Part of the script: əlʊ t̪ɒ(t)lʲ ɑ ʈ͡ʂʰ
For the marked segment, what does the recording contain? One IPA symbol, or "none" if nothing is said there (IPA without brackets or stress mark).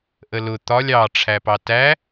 none